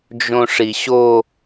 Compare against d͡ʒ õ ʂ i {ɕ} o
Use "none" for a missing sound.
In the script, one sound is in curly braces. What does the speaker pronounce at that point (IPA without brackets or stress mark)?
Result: ɕ